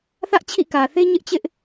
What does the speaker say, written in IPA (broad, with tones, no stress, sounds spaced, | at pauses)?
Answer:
θ ä˦ ʔ t͡ɕʰ ḭ˦˨ k ä˨ θ e˦ ɲ ɪ˦ ʔ t͡ɕ ɪ˦ ʔ